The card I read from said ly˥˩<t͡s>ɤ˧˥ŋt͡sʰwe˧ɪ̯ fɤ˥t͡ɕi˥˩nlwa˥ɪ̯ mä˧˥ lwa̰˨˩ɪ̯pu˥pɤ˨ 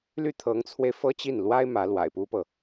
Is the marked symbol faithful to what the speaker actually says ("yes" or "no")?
no